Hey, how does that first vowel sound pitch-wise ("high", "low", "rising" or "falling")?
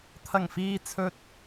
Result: low